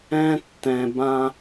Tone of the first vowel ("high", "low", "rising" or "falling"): high